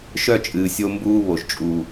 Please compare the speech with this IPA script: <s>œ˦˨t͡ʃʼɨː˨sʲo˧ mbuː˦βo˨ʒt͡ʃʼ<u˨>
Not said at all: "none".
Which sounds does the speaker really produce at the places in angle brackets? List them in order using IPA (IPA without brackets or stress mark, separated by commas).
ʃ, u˨